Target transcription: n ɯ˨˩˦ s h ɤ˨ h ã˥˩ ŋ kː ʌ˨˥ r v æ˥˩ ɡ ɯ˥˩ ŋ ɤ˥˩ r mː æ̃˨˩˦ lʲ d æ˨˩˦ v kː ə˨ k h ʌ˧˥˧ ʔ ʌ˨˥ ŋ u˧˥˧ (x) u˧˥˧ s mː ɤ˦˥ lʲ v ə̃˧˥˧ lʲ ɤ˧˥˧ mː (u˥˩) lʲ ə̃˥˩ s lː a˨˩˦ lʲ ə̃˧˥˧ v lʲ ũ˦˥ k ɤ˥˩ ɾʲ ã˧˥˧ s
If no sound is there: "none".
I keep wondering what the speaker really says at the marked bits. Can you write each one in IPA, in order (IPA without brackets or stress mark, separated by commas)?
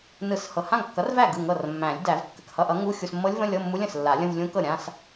xʲ, u˦˥